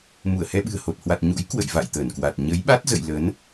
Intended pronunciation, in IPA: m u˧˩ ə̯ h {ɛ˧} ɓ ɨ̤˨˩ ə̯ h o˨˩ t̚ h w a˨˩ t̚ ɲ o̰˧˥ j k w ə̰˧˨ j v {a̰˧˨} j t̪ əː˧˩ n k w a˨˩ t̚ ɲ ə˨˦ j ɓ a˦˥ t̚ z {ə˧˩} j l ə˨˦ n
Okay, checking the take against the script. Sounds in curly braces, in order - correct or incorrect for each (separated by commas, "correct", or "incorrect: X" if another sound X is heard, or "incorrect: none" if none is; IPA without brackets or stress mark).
correct, correct, incorrect: ə̰˧˨